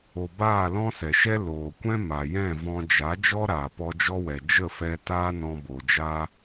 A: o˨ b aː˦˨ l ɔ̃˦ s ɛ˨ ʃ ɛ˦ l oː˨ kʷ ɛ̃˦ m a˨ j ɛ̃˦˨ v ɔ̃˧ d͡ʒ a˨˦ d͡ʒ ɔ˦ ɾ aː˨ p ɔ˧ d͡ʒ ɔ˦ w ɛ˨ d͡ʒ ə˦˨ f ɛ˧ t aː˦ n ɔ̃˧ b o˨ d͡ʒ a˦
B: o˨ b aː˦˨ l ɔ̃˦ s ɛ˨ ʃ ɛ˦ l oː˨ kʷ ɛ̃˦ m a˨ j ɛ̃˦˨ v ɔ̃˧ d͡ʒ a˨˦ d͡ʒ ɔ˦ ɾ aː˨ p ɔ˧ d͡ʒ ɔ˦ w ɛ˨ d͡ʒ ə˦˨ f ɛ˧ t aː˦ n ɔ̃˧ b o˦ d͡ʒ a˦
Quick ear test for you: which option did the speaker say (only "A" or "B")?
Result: A